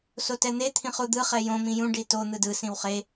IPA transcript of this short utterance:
s o t ɛ n̪ e t̪ʰ ĩ χ u d̪ ɯ χ ɛ j õ m ĩ j ũ ɖ i t o n̪ ɯ d ɯ s ĩ w χ e

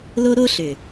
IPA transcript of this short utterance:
l o˦ ɾ o˦ ɬ ʏ˨

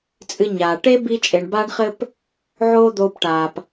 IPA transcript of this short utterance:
t͡sʼ ɨ˧ ɲ aː˨ ʈ e˦ b i˧ t͡ʃʼ e˨ ɳ b aː˧ ɳ χ ɘ˧ p | ʕ oː˦ d̪ oː˧ p ʈ aː˨ p

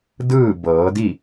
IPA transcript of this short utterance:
d ɯː˥˨ b ɤː˩˧ d i˥˨

